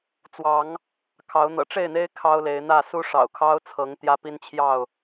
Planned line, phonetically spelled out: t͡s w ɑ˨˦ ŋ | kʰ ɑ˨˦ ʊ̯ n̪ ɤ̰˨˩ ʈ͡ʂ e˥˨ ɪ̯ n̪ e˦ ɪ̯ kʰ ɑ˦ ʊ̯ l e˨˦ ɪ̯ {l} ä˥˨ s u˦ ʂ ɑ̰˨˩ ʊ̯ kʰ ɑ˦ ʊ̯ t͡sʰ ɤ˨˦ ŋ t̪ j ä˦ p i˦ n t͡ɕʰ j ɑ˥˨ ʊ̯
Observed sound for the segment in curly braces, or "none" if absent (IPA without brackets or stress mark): n̪